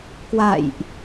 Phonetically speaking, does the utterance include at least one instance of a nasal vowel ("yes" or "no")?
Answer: no